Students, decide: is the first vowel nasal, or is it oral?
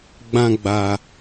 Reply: nasal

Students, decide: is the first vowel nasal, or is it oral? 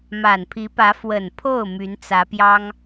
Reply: oral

